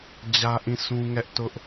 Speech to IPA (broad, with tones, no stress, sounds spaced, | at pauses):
d͡ʑ ä˦ ʔ ĩ˦˨ sʰ ũ˦ ŋ ɛ˦ ʔ t ʊ˦ ʔ